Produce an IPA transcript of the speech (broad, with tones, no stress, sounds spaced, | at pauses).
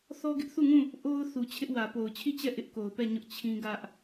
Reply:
θ ɔ˦ ɡ ɪ˦ ʔ θ u˦˨ ŋ ũ˦˨ | ʔ o˦ ʊ̯ θ u˨ t͡ɕʰ ɪ˦ ʔ w ä˨ p o˨ ʊ̯ t͡ɕʰ i˦˨ t͡ɕ ɛ˦˨ ʔ ɪ˦ ʔ k o˨ ʊ̯ p ɛ˦˨ ɲ ʊ˦ ʔ t͡ɕʰ ĩ˦ ɡ ä˦ ʔ